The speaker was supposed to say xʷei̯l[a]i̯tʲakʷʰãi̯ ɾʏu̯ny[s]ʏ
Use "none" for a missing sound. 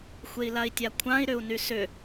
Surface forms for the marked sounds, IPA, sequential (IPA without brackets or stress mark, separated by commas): a, s